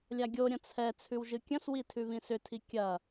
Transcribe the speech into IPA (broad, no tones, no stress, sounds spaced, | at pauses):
lʲ a ɡʲ o ɾʲ ɐ̃ t͡sʰ ɛ t͡sʰ ʉ w ʒ ɨ kʲ ɐ̃ s w i tʰ ʉ β ĩ s ʏ tʰ i kʲ ɐ